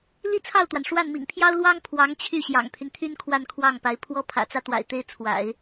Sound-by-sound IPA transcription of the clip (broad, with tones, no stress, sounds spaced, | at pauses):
l i˥ t͡sʰ ɑ˥˩ ʊ̯ t̪ w a˩ n ʂ w a˥˩ n m ḭ˨˩ ŋ pʰ j ɑ˥ ʊ̯ l w ɑ˥ ŋ pʰ w ɑ˧˥ ŋ t͡ɕʰ y˥˩ ɕ j ɑ̰˨˩ ŋ pʰ y˦ n t̪ʰ y˥ n kʰ w a˥˧ n kʰ w ɑ˥˩ ŋ p a˧˥ ɪ̯ pʰ w ɔ˥ pʰ ä̰˨˩ t͡s ä˥ t̪ w a̰˨˩ ɪ̯ t̪ e˥ ɪ̯ t͡sʰ w a̰˨˩˦ ɪ̯